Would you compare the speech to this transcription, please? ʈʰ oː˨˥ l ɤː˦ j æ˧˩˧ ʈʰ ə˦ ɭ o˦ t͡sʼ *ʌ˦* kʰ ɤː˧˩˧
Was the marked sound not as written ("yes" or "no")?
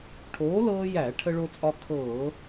yes